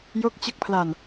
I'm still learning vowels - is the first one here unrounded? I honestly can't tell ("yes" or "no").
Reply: no